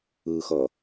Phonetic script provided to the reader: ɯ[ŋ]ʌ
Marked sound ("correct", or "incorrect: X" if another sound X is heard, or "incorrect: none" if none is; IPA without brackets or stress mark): incorrect: x